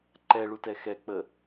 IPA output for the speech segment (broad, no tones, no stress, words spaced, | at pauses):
ǃɛɭutɛ xɛk͡pə